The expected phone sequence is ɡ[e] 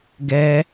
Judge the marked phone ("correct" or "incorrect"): incorrect